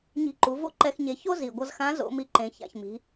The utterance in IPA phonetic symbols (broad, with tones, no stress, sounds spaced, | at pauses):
ɲ i̤˧ ǃ u˩˧ v o̰˥ ǃ ɛ˧ x ɲ e˩˧ ç o˥ z i˩ ɡʷ ʌ˧ z x ã˧˥ z o̰˩˧ m i˧ ǃ ẽ˩ ç a̰˩ ç m i̤˩˧